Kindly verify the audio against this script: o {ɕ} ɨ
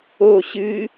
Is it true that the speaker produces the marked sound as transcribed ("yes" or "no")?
yes